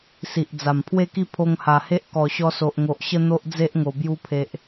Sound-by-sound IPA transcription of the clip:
s i˨ ʔ d͡z a˨˩ m pʰ w e˥˧ k i˥˧ pʰ o˧ ŋ h a˨˩ h e˦ ʔ k ɔ˨˩ ɕ ɔ˧ s o˨ ʔ ŋ o˨ ʔ ɕ ə˦ n̪ o˦ ʔ d͡z e˦ ʔ ŋ o˨˩ b j u˧ pʰ e˨ ʔ

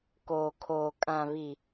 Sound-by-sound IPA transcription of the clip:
k oː˨ kʰ oː˨ kʼ ã˨ β i˨

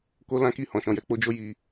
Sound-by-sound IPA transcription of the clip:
k o˦ l ã˦ k i˦˨ h ɔ̃˨ ʃ ɔ̃˨ j ɛ˧ k͡p o˦ d͡ʒ o˦ j i˧

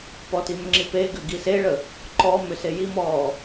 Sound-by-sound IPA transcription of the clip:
p ɔ t i m ʏ ŋ͡ǁ i p e ɡ ʏ ɡ i s e ɭ ə | ǃ ɔ m ʏ s e j i m ɔː

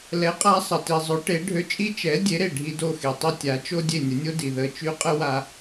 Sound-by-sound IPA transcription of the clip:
l ɛ˩˥ qʼ a˧ sˤ ə˩ t i˩ zˤ ø˩˥ ʈ e˩˥ ɖʱ ø˧ t͡ʃʼ i˥ t͡ʃ ɛ˩˥ dʲ e˩˥ ɾ e˩ ɖʱ i˧ d o˥˩ x e˩ tˤ i˥ tʲ a˩˥ t͡ʃ o˥ dʲ e˥˩ nʲ ə˩˥ nʲ o˥ d i˩ ð ə˧ t͡ʃ y˥ qʼ ə˥ w a˧

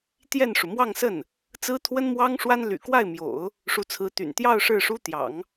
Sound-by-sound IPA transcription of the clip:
t̪ j ɛ˥˩ n ʂ u˩ m w ɑ˥˧ ŋ s ə˥˩ n | t͡s ɹ̩˥ t̪ʰ w ə˥ n m w ɑ˥ ŋ ʂ w a˥ n l y̰˨˩ k w a˥˩ ɪ̯ m j o̰˨˩˦ ʊ̯ | ʂ u˧˥ t͡sʰ ɹ̩˧˥ t̪ y̰˨˩ n t̪ j ɑ˥˧ ʊ̯ ʂ ɻ̩˥˩ ʂ u˥ t̪ j ɑ̰˨˩˦ ŋ

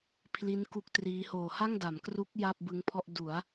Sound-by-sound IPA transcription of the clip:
pʰ l i˦˥ n k u˦˥ k̚ t r iː˦˥ h oː˨˩ h a˥˩ ŋ d a˩˦ m k r u˦˥ k̚ j a˥˩ p̚ b ɯ˦˥ ŋ pʰ ɔ˥˩ ʔ d u˩˦ a̯

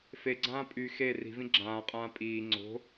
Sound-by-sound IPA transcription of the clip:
f e ɡ͡ǀ ãː pʼ y x e r i̤ v ĩ ɡ͡ǁ ãː qʼ ãː pʼ iː ŋ͡ǀ o̤

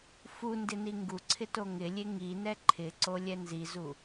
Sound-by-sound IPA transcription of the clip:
f u n d ɪ n i ŋ ɡ u ǀʰ ɪ t o ŋ ɪ lʲ e ŋ i n ɛ ǃʰ ɪ ǀ o lʲ ɛ n z i z u

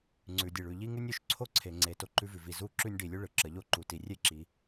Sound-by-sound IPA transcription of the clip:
ŋ͡ǀ ʉ˩ dʲ e˩ ɭ ʉ˩ ʎ i˧ ŋ ʉ˧ nʲ o˩ ʃ ǀʰ o˧ ǀʰ e˩ ŋ͡ǀ e˩ t o˧ ǃ ʉ˧ v ʉ˩ v i˩ z u˧ ǁ ʉ˧ nʲ ɖ i˩ lʲ u˧ ɭ ɯ˩ ǁ ə˩ ʎ o˧ ǃ u˩ t i˩ rʲ e˧ ǁ i˩

